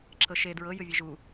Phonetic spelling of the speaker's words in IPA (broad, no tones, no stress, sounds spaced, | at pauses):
ǁʰ ɤ ʃ e d ɹ ɤ j ɯ vʲ e ʒ u